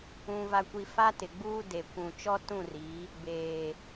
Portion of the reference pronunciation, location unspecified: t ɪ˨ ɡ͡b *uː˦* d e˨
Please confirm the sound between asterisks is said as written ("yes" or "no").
yes